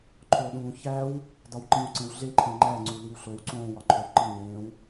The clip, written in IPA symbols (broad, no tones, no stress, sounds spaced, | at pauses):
ǃʰ o ɗ ũː ç æ w | d ɒ w ǃ ĩ w ǀ ẽ w ɮ e ǃʰ ẽ ŋ͡ǃ æ ŋ͡ǀ u l i w ɬ o w ǀ õː w ɒ ǃʰ o w ǃ i ɲ ẽː w